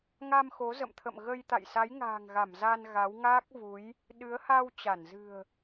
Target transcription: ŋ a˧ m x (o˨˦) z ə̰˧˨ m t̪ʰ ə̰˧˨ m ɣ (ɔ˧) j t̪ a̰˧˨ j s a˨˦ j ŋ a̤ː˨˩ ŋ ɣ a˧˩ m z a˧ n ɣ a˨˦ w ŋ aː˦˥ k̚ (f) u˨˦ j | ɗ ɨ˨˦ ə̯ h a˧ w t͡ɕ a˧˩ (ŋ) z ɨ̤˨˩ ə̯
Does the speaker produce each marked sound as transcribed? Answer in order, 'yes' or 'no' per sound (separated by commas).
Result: yes, no, no, no